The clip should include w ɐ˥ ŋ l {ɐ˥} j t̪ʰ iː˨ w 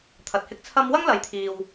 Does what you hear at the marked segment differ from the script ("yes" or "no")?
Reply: yes